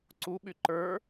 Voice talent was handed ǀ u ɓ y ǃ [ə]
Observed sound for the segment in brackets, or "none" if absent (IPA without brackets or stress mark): ə˞